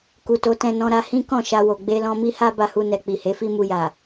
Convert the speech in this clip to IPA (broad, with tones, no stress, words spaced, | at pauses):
ku˨to˨˦tɛ̃˧ nɔ̃˧ɾa˧hĩ˦ kɔ̃˦˨ʃa˧wo˨ ɡ͡be˧lɔ̃˧mi˦ha˦ ba˧hu˧nɛ˨ k͡pi˨ he˨˦fi˦mu˧ja˨